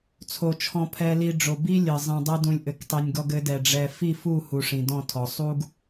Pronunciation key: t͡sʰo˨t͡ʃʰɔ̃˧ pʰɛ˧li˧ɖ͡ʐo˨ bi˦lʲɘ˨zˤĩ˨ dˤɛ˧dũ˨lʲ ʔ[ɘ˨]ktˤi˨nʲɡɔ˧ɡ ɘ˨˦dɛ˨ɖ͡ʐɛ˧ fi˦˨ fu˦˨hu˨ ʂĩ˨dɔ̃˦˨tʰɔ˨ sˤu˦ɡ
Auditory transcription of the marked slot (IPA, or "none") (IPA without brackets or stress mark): ɘ˨